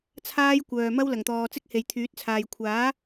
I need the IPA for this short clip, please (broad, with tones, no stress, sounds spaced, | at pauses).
t͡sʰ aː˥ j kʷ œː˨ m ɐ˥ w l ɐ˨˩ ŋ t̪ ɔː˨ t͡s ɪ˥ k̚ h e˨ j t̪ʰ yː˨˥ t̚ t͡sʰ aː˨ j kʷʰ aː˨˥